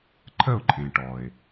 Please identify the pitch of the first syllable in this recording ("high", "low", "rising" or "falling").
falling